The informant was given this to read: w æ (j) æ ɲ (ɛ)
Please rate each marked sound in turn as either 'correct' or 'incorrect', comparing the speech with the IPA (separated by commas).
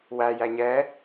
correct, correct